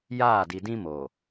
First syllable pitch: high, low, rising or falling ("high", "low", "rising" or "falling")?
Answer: falling